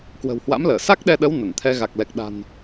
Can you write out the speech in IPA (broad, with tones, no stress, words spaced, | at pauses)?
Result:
kwə̤˨˩whwa̰˧˥mləː˧˩ sa˦˥k̚ɗɛ˧ɗə˨˦w nə˧˩nt̪ʰɛ˧ ɣa˨˩k̚ lɛ˨˩k̚ɗa̤˨˩n